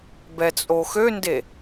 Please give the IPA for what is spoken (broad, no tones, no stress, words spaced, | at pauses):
bɛt͡sʼoxønde